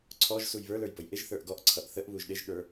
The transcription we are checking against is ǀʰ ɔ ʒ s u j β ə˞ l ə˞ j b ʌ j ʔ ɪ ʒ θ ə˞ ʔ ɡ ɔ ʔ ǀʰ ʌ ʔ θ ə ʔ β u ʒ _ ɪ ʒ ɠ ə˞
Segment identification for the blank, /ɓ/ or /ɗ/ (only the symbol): ɗ